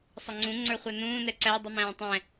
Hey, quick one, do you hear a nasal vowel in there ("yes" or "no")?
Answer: yes